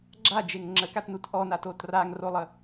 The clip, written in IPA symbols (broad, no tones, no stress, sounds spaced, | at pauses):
ɡ͡ǁ a d͡ʒ e ŋ ŋ͡ǁ ə k a t n u t ʔ ɔ n a t o t r a ŋ r o lˠ ə